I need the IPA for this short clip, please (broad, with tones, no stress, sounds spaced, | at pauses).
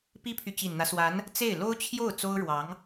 p i˥ pʰ y˨ t͡ɕ i˨˩ n n̪ ä˦ s w a˧˥ n | t͡s e˥˩ ɪ̯ l o˥ ʊ̯ t͡ɕʰ j o˥˩ ʊ̯ t͡s o˥ ʊ̯ ɻ w ɑ˧˥ ŋ